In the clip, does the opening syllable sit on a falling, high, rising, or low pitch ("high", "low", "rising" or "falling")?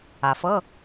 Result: low